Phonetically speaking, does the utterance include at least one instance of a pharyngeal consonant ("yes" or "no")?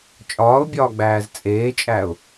no